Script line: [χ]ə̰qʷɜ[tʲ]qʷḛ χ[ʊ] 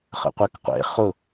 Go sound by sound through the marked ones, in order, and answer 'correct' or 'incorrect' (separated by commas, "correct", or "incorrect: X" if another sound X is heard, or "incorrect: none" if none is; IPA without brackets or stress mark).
correct, incorrect: k, correct